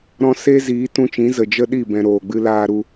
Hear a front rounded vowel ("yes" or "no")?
no